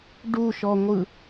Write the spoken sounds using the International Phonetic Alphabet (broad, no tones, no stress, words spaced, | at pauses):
ɖuʃɔŋʷɯ